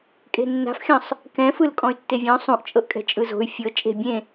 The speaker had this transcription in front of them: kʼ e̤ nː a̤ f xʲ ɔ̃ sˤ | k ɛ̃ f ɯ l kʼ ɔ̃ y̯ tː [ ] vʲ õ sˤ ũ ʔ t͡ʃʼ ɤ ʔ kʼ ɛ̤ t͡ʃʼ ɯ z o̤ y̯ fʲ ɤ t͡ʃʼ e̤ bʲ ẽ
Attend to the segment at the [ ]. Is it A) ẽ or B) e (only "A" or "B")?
B